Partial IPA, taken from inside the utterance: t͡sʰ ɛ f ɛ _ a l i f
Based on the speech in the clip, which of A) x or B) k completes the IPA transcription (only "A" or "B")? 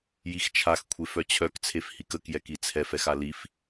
A